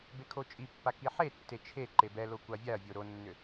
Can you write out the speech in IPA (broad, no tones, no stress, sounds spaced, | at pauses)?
b e kʰ o t͡ʃʼ i pː a k i ħ e tː e t͡ʃʰ e ǃ e b ɛ l o kʷ a vʲ a ɐ̯ vʲ o ɾ o nː ʏ